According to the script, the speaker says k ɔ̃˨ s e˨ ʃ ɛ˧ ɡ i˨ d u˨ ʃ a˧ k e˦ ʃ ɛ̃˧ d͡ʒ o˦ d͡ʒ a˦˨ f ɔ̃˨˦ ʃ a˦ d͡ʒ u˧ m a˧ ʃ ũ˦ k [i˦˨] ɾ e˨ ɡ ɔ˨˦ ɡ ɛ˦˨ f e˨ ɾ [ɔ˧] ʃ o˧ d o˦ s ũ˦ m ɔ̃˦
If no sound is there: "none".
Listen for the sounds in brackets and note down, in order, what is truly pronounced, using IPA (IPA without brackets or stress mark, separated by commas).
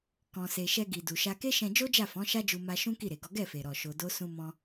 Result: i˦˨, ɔ˨